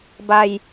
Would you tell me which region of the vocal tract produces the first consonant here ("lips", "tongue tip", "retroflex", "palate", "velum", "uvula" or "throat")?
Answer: lips